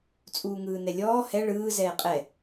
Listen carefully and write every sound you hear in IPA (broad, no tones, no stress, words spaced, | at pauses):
t͡sʼuːŋɯːnɛlʲɔː hɛ ɭɯː zɛːqʼɛ